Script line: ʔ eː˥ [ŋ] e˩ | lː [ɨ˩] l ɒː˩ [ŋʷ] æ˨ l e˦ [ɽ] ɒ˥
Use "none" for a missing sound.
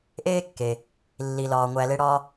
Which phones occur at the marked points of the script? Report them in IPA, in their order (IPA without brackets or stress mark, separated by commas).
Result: kː, i˩, ŋʷ, ɽ